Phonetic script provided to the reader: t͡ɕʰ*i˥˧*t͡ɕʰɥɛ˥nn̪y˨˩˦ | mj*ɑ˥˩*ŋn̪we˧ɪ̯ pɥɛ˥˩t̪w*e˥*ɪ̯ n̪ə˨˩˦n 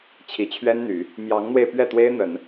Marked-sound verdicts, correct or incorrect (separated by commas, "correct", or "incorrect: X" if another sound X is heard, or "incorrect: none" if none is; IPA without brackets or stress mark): incorrect: i˨˩, incorrect: ɑ˧˥, correct